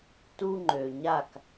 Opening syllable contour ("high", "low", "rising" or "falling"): high